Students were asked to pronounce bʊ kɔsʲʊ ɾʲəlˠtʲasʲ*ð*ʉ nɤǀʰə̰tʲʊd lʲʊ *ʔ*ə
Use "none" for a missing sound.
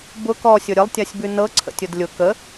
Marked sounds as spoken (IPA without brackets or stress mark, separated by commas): b, k